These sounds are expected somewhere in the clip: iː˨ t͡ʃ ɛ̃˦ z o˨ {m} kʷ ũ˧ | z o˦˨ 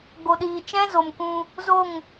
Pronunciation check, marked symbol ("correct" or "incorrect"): correct